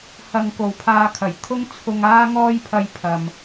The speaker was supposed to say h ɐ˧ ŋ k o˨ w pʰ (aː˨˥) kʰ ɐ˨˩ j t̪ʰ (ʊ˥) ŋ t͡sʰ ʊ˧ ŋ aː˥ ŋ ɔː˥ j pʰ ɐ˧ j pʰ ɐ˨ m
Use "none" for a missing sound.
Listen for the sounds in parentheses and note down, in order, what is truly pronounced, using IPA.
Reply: aː˧, ʊ˥

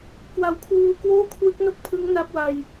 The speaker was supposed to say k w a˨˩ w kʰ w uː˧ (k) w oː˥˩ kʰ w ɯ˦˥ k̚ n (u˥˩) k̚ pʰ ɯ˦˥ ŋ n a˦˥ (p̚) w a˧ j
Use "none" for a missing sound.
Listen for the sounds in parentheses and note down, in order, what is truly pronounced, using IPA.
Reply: k, o˥˩, p̚

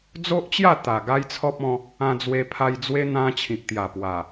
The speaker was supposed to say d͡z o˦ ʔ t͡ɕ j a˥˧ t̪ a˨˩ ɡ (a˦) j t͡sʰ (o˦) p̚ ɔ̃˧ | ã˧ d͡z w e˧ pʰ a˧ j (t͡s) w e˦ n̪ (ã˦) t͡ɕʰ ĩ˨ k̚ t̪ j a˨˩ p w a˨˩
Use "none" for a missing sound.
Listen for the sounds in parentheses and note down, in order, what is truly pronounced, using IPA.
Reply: a˦, ɔ˦, d͡z, ã˦

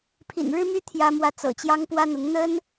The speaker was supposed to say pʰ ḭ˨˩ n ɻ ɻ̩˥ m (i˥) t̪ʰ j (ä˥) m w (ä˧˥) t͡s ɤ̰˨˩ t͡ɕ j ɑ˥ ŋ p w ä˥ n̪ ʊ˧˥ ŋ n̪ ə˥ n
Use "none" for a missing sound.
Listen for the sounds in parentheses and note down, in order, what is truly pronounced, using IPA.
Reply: y˥, ä˥, ä˥˩

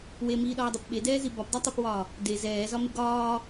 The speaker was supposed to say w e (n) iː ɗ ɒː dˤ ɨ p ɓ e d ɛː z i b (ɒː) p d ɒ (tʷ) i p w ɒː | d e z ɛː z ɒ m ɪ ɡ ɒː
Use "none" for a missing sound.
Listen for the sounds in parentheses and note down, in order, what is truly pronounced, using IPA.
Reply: m, ɒ, tˤ

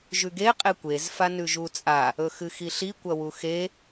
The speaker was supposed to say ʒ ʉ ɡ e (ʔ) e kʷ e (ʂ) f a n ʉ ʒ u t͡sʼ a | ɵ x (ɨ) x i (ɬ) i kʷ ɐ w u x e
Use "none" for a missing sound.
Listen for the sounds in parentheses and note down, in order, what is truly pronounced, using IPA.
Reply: qʼ, z, ɨ, ɬ

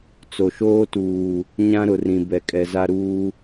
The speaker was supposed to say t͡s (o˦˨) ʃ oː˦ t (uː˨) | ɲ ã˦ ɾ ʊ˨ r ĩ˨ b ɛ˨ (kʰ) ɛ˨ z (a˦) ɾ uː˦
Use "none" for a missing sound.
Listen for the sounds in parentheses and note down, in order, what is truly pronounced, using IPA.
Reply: o˨, uː˨, kʼ, a˦

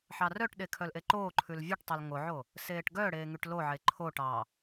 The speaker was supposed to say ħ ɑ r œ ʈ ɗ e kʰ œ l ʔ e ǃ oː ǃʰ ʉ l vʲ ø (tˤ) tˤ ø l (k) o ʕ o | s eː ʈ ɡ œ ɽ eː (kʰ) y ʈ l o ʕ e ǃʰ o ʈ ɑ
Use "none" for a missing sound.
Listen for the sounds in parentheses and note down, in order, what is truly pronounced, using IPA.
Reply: ʈ, ŋ, ŋ

